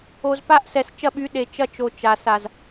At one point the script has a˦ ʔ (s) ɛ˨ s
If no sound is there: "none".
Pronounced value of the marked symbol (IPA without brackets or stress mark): s